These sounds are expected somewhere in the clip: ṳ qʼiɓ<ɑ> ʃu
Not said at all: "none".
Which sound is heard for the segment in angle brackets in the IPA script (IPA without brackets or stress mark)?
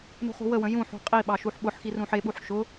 ɑ